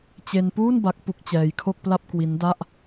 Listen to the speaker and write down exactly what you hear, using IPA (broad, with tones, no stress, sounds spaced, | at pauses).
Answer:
t͡ɕ e˧ n p uː˥˩ n b a˦˥ k̚ p u˦˥ k̚ t͡ɕ ɛː˧ j kʰ o˥˩ k̚ p l a˥˩ p̚ k w i˦˥ n d a˥˩ ʔ